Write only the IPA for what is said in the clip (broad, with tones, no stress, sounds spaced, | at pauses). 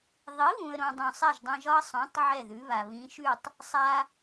ðˤ i˩˥ β ũ˩ ə̯ ɾ õ˩ dˤ ũ˩ sˤ ɛ˥˩ ʒ dˤ ɛ̃˧ ʒ ɒ˥ ə̯ sˤ õ˩˥ tˤ ʕ ɛ˥˩ ð ʉ˩˥ β a˩ β ĩ˩˥ ʃ ʉ˥˩ tˤ | sˤ a˧